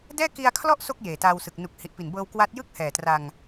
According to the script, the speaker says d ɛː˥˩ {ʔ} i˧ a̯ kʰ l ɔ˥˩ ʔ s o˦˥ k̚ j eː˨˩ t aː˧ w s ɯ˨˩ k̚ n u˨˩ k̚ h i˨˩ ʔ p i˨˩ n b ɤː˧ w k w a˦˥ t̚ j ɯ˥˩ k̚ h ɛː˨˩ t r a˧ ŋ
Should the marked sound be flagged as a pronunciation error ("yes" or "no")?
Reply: yes